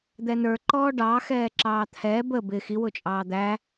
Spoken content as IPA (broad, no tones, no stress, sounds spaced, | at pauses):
d̪ ɛ n ə˞ ǃ ɔː ɖ ɑ x ɛː ǁ ɑː t̪ʰ ɛː b ə b ɪ x i w ʊ t͡ʃʼ ɑː d̪ æ